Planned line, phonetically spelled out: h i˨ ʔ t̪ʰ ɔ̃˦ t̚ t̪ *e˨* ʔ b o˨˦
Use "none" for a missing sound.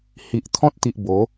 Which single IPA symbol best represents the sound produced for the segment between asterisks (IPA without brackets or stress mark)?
i˨